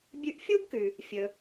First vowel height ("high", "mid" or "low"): high